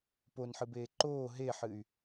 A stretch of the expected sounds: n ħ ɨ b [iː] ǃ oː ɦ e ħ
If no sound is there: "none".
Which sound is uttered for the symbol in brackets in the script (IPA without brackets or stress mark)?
eː